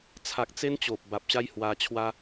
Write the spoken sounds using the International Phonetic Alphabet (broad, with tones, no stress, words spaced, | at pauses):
t͡sʰa˨k̚ t͡se˦nt͡ɕo˨p̚ ba˨p̚ɕa˦jhwa˧t͡ɕʰwa˦